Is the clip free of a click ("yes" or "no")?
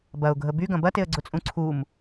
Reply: no